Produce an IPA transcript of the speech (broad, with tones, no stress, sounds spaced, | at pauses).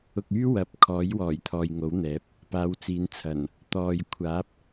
ʊ˨ k̚ yː˥ w ɐ˨˥ p̚ kʰ ɔː˨˥ j w ɔː˨˩ j t̪ʰ ɔː˨ j ŋ o˨˥ w n̪ ɛː˨˥ p̚ | p aː˨˧ w t͡s iː˨˧ n t͡sʰ ɐ˨˩ n | t̪ ɔː˨ j kʷʰ aː˨˥ p̚